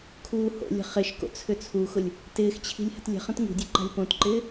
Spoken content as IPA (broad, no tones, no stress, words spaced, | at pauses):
kʰuːho̰lʲə̤ χɪʃko̰ t͡sʰʏt͡sʰuxʊlʲ | tɪːxt͡ɕʰi̤lʲ hə̤tlʲə̤χə̃t ŋṳdʲɵ ǃa̤lʲpõtǃɪː